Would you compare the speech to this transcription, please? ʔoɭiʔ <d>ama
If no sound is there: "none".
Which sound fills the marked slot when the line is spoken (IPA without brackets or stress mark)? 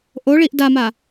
d